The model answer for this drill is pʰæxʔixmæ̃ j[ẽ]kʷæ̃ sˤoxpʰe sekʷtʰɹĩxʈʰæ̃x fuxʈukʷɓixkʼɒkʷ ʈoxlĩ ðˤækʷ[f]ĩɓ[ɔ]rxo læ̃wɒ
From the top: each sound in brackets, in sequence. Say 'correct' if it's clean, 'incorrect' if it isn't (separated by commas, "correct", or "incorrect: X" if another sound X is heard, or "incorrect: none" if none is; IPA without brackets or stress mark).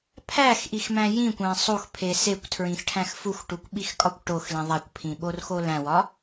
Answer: incorrect: ĩ, incorrect: pʰ, incorrect: o